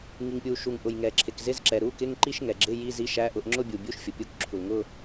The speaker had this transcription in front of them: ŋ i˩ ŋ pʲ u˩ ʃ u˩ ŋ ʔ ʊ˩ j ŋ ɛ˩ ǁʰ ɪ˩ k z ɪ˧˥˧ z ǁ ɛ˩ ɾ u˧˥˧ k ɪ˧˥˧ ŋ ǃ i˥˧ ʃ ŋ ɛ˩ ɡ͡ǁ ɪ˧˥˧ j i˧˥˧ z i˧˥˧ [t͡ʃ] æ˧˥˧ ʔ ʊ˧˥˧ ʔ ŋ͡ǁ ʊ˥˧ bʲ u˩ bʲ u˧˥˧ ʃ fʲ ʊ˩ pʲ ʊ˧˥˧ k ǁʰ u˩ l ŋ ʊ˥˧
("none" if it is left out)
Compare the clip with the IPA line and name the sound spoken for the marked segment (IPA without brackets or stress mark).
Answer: ʃ